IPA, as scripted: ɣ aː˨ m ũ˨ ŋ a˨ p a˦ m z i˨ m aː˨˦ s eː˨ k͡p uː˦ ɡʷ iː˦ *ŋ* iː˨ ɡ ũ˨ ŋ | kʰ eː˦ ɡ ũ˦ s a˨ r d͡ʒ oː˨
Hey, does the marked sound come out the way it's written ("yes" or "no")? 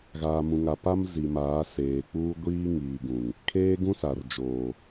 yes